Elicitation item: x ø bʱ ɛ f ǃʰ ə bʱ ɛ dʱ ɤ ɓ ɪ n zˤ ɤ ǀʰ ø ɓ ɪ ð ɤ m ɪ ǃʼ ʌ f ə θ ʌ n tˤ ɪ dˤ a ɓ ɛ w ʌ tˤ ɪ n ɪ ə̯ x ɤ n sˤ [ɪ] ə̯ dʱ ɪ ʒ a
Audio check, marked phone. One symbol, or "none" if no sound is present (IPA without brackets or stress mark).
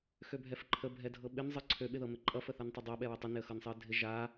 ɪ